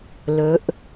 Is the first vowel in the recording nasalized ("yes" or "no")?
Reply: no